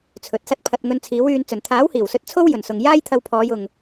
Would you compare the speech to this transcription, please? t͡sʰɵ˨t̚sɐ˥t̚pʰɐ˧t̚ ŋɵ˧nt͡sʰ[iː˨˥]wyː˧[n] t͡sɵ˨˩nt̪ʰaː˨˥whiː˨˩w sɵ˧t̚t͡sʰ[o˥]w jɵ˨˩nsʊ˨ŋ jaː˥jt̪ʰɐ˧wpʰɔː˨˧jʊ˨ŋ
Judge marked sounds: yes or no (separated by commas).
yes, yes, yes